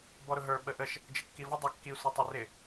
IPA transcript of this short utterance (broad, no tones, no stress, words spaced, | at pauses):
bɔɾʊɦə˞ ɓəʔəʃ | d͡ʒəkːivə dˤɑkːi sʷɛtˤɛrɪ